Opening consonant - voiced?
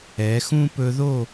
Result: no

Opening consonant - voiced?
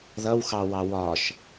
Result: yes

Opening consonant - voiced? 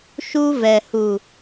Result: no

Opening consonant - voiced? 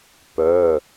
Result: no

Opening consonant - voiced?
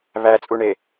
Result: yes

